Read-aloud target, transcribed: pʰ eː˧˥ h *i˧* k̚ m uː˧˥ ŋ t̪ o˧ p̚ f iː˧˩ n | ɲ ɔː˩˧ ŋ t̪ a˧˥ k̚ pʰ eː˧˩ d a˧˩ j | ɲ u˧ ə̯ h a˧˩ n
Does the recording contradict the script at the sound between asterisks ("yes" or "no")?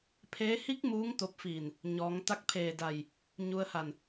yes